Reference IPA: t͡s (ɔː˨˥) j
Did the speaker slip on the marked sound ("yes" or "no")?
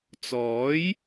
no